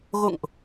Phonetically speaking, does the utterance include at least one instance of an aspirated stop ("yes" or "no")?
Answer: no